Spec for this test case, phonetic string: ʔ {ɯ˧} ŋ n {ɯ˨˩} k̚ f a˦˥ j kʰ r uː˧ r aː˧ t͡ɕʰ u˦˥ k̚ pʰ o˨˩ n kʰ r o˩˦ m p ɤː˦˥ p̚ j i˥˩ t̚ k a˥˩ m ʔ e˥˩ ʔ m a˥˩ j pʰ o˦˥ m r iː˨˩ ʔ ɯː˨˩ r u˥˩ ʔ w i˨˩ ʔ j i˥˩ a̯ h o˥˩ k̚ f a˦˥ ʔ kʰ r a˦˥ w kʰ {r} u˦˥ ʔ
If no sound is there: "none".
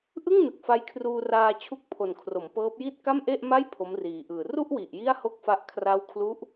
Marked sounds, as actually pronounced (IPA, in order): ɯ˥˩, ɯ˨˩, l

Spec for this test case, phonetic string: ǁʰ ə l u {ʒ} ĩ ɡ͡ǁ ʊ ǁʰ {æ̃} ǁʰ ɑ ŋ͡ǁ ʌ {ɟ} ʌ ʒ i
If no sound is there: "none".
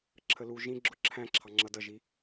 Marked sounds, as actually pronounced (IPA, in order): ʒ, æ̃, d

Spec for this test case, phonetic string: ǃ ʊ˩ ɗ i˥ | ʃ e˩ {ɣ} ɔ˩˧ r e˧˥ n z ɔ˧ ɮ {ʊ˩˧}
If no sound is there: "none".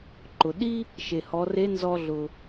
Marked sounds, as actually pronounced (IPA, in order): h, ʊ˩

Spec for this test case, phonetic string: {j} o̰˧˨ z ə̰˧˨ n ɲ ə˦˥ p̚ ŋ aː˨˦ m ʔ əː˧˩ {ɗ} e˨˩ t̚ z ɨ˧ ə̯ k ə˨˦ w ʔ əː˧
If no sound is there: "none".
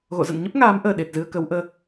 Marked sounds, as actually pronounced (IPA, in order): ɣ, ɗ

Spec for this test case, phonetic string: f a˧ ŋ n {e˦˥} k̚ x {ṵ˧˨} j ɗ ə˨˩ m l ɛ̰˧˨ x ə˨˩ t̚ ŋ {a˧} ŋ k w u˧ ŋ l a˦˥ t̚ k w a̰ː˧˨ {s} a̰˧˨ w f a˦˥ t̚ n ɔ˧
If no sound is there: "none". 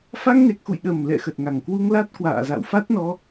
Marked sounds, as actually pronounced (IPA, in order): e˨˩, ṵ˧˨, a˨˩, z

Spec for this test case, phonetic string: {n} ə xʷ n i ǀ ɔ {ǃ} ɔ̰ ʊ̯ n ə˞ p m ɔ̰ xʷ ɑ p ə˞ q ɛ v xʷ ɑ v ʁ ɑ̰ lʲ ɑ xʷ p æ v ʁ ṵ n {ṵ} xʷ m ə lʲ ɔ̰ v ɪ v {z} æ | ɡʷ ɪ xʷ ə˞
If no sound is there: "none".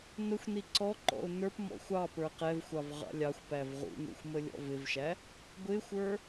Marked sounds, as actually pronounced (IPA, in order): n, ǃ, ṵ, ʃ

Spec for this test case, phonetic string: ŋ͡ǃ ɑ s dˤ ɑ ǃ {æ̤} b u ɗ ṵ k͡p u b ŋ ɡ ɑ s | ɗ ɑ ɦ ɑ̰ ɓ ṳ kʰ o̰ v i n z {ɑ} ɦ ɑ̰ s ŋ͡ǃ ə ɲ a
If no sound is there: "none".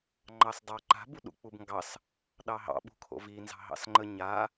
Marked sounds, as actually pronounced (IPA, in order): a̤, ɑ̤

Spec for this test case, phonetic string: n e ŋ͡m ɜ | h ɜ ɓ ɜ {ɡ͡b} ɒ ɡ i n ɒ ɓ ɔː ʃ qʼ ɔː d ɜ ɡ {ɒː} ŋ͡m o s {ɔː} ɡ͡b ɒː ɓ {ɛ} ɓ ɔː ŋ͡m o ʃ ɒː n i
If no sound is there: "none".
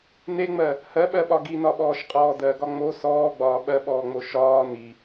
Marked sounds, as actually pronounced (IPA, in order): ɓ, ɒ, ɔː, ɜ

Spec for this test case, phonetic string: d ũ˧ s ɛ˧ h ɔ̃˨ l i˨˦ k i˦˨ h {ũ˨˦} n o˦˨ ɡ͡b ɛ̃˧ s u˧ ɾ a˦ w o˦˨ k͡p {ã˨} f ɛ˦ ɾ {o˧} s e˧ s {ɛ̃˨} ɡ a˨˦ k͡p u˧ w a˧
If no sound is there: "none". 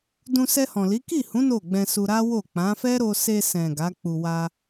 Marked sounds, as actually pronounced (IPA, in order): ũ˨˦, ã˨˦, o˧, ɛ̃˨

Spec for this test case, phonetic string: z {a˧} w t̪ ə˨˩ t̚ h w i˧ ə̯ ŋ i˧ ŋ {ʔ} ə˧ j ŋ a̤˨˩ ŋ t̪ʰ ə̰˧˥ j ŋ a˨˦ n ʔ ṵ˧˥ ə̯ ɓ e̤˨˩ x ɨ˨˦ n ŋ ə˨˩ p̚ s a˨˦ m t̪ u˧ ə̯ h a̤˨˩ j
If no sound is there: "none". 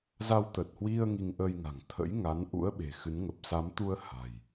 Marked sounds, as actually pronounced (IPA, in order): a˧, ʔ

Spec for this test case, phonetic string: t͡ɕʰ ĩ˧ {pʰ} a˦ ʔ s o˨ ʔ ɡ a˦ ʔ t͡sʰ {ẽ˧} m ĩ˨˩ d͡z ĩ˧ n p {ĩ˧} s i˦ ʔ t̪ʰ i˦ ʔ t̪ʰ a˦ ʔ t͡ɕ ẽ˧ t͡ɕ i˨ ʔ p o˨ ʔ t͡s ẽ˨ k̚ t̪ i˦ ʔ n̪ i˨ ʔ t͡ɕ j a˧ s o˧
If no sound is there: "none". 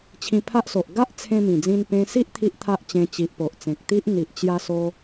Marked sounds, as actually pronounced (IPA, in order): pʰ, ẽ˧, ẽ˧

